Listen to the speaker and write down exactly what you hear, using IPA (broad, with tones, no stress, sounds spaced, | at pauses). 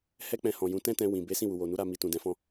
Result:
h ɛ˦ k͡p ɛ̃˧ h ɔ̃˨ j ũ˨˦ t ɛ̃˦ t ɛ̃˧ w ĩ˨ b e˨˦ s ĩ˦˨ w u˨ w o˨ n u˨˦ ɾ a˧ m i˧ t ũ˨ d ɛ̃˨˦ f ɔ̃˦